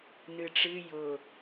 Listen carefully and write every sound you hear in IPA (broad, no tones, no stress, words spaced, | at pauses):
nɨʈ͡ʂɨ jʊ